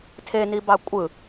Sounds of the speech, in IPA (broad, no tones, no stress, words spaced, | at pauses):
tʰenibɑ kʷʼɯ